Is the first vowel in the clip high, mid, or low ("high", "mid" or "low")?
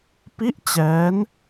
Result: high